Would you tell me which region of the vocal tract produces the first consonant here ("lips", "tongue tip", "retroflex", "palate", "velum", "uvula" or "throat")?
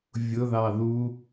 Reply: lips